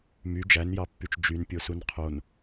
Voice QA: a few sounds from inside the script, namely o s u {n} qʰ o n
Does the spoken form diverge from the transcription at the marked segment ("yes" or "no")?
no